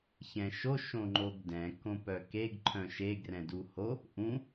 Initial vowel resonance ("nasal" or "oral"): nasal